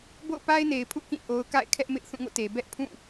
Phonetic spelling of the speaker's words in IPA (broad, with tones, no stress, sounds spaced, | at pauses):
b o̰˦˨ ʊ̯ p a˦ ɪ̯ n e˨ ɪ̯ pʰ ṵ˦˨ k ĩ˦˨ ʔ o˦ ʊ̯ k a̰˦˨ ɪ̯ kʰ ɛ˦ ʔ m ɪ˦ ʔ θ ũ˦˨ ŋ o̰˦˨ t e˨ b ɛ˦ ʔ pʰ ũ˦˨